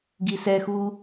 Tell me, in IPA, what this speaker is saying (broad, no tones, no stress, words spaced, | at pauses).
ɡisɛxu